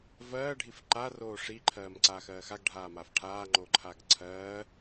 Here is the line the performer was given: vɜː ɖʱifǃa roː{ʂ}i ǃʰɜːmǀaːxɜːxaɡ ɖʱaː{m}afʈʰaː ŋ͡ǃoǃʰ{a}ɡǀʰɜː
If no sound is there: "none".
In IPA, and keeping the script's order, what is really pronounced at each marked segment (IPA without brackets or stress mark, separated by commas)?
ʂ, m, a